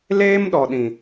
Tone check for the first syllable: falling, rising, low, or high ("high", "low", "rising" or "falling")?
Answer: high